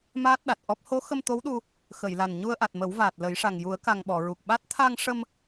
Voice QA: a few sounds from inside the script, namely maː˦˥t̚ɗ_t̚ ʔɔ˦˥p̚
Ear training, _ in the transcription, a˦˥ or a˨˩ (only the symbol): a˨˩